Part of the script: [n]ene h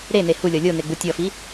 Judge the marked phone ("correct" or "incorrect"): incorrect